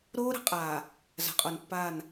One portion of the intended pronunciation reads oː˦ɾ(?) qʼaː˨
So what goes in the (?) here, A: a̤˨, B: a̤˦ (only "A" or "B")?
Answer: A